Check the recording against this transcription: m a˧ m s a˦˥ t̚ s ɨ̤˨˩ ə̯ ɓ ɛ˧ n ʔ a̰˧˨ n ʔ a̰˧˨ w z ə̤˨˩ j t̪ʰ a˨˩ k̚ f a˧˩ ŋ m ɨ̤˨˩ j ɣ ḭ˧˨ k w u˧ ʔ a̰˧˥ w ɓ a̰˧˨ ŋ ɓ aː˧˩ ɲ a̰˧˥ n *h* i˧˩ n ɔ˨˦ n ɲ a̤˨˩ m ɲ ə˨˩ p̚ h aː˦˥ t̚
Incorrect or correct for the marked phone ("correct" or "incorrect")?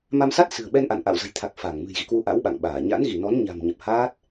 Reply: incorrect